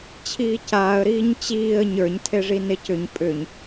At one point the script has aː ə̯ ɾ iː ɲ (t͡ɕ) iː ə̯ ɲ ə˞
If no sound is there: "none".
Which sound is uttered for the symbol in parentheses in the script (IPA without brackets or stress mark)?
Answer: t͡ɕ